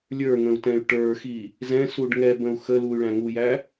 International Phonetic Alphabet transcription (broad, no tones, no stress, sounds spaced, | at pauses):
lʲ ə˞ ŋ ə̃ u̯ t ɛ̃ y̯ ʈ ə˞ x i | z ɛ̃ s u ɖ ŋ ɛ b ə̃ u̯ x ə l u y̯ ɭ æ̃ ŋ u j æ